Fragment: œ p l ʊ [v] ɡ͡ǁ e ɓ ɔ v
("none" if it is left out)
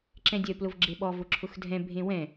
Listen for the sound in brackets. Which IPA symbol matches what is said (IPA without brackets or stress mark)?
v